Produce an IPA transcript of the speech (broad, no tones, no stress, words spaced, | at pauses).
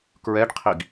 kɹɛɖqʰiɡ